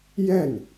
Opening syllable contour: falling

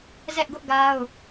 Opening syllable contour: high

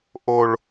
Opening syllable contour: low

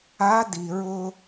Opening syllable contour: rising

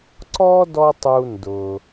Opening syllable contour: high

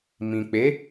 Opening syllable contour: low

